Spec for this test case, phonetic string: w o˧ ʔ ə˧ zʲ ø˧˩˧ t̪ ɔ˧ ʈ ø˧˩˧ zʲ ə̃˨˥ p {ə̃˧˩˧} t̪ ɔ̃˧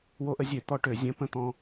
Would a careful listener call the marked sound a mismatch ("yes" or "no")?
yes